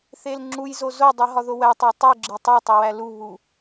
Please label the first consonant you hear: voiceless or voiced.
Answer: voiceless